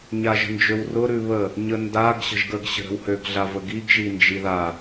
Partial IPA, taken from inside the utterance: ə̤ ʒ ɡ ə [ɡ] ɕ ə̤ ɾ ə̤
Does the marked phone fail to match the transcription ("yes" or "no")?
no